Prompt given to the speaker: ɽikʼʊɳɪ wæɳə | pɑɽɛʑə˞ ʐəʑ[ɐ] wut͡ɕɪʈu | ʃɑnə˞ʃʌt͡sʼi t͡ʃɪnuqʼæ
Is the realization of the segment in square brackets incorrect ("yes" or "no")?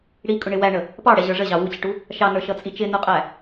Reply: yes